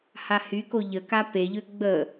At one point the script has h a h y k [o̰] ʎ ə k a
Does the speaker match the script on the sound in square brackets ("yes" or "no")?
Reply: no